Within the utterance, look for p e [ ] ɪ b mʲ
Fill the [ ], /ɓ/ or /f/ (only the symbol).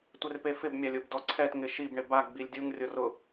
f